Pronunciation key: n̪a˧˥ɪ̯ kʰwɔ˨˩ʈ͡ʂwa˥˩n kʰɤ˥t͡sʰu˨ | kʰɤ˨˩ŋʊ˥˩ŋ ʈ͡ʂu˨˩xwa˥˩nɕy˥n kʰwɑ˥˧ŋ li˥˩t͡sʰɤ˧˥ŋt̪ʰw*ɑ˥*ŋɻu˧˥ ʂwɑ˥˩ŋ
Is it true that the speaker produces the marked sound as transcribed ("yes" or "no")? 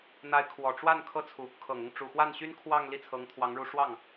no